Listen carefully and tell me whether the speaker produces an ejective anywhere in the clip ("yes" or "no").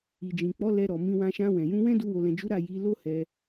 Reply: no